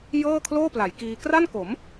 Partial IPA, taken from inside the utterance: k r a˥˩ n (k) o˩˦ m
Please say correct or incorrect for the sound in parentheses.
correct